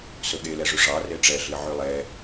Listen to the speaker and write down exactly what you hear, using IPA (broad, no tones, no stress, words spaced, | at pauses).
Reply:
sɵɠelɛʐʉ ʐɑ reʈ͡ʂɛɮi ʕylˠɛ